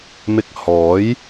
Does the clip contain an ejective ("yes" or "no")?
no